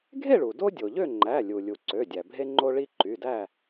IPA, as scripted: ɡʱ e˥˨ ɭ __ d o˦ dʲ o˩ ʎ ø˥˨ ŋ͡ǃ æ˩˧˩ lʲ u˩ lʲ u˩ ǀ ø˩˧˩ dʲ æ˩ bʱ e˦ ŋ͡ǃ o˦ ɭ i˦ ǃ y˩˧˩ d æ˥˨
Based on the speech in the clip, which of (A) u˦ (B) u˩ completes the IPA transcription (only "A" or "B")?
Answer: B